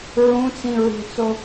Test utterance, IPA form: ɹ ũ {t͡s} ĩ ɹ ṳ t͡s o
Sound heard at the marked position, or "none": t͡s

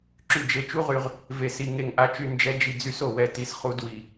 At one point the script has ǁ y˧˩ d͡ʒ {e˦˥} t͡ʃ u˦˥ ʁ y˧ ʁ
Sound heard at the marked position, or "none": e˧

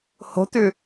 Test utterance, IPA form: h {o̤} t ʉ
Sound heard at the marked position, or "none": o̤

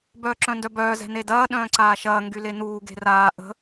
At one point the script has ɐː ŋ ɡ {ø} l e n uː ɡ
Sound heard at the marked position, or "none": y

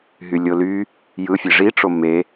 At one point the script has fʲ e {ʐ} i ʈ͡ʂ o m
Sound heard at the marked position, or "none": ʐ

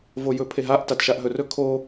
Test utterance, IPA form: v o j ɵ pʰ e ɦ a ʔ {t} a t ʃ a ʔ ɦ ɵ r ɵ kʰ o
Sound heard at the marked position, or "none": t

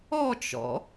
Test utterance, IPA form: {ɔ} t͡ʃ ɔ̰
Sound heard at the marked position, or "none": ɔ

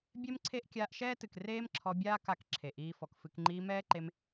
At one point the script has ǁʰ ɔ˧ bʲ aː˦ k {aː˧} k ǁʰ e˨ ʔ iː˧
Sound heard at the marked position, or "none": a˧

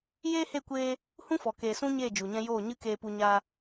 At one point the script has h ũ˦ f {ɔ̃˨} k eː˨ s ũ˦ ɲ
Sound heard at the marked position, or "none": ɔ˨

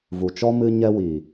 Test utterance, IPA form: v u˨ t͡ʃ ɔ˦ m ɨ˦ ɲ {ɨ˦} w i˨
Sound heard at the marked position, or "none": ɛ˦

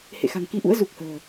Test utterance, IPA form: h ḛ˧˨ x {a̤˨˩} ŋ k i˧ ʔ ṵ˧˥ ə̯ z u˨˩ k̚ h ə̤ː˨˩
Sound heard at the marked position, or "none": a̤˨˩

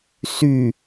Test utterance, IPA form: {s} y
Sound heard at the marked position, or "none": s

